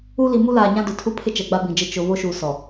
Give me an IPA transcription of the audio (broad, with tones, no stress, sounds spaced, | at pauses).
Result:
u˦ l i˨ m u˦ l aː˨ ɲ ã˦ d ʊ˨ tʰ u˦ pʰ ɪ˦ t͡ʃ ɛ˨ ɡ͡b a˦ b ĩ˨ d͡ʒ ɪ˦˨ t͡ʃ ʊ˨ β o˦ ʃ uː˨ s ɔ˨